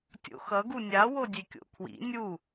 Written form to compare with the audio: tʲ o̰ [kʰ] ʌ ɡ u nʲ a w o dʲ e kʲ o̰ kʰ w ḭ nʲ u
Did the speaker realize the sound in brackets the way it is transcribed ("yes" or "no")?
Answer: no